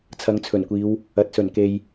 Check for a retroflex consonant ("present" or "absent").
absent